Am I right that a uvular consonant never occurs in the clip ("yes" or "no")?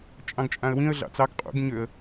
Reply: no